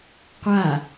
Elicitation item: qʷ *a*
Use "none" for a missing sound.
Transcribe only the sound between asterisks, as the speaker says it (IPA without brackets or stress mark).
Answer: a